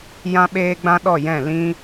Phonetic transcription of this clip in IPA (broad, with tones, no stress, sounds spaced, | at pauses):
j ã˦ ɓ eː˦ ɡ͡b ã˦ ɗ ɔ˦˨ j ɛ̃˦˨ l ĩ˦